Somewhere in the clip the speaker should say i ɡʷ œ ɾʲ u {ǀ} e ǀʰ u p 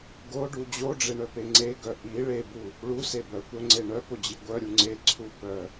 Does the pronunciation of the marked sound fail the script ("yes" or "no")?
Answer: yes